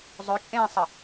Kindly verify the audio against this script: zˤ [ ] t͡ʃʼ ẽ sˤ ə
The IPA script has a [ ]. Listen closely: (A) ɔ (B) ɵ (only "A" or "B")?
B